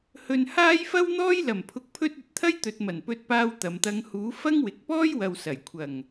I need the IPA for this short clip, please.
hɵ˨n haː˥jfɐ˥wn̪ɔː˥j lɐ˨˩mpʰʊ˨k̚pʰɵ˧t̚ ɵ˨˥t̚t̪ʰɐ˥j t̪ɵ˨t̚mɐ˨˩n pɵ˧t̚paː˧w t̪ɐ˨mt̪ɐ˧ŋ huː˨˥ fɐ˥ŋ wɪ˨k̚ pɔː˥jwɐ˨wsɐ˨˩j kʷʰɐ˨˩ŋ

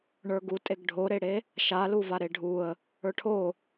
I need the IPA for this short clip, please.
ɳə˞ɡutʼeɡ ɖʱoɾeɽe | ʃaluva ɾeɖʱuə̯ | ə˞ʈʰo

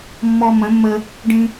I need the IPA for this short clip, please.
mːɔ˧mə̃˨˦mːə˧ | ɖĩ˧

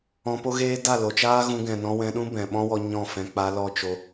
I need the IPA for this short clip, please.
ɔ̃˧po˦ɣeː˦ da˦˨lo˨t͡ʃaː˦ ɣũ˧ɡɛ̃˨nɔ̃˧ wɛ̃˧ɗũ˦ bɛ̃˨ɓɔ̃˦wɔ˧ ɲɔ̃˦˨fɛ̃˧ k͡pa˧ lɔ˦ t͡ʃo˧

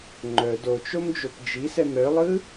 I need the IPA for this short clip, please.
ŋ͡ǃœ dot͡ʃomd͡ʒop d͡ʒisɛm ɾœlˠɯ

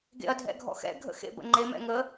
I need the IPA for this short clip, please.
ɡḛɐ̯dʱɛ̰ɡʱɔ̰xɛ̰ ɡʱə̰xḛbə̰ŋ͡ǃe mɛ̰ŋə

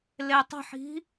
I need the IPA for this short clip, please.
letˤo̤ħi̤

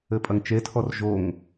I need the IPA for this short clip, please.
ɘpʼɐŋt͡ʃetʰɔr ʒoŋ

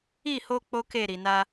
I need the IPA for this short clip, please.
i˦˨ho˧ k͡po˦ke˦˨ɾi˨na˧

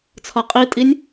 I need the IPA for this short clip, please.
t͡sʰɒqʼitʼinʲ

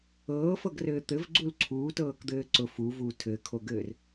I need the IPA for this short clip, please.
ɤːfɤɡrɘː t̪ɘvɡ͡ǀul ǀʰuːtɤːkd̪ɘː ǀʊ fuvuː tʰɘːkʰoɡɘːr

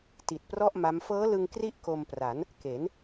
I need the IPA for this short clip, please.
ti˨˩t̚prɔ˥˩ʔ ma˦˥m fɤː˦˥lɯ˧ŋ kri˥˩ʔko˧mpra˩˦n | ke˩˦n

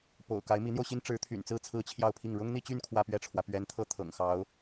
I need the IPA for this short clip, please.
po̰˨˩ʊ̯ ka˧˥ɪ̯mi˧˥n̪jo˧ʊ̯ɕi˥n ʈ͡ʂɻ̩˧˥t̪ʰy̰˨˩nt͡sɹ̩˥˩ t͡sʰɹ̩˥t͡ɕʰjɑ˥˧ʊ̯pʰi˥˩ŋ ɻʊ˥ŋn̪i˥˧t͡ɕy˥˧n kʰwä˥˧pɥɛ˥˩ʈ͡ʂʰwä˩ pɥɛ˧˥nt̪ʰɤ˥˩ t̪ʰɤ̰˨˩ŋxɑ˧˥ʊ̯

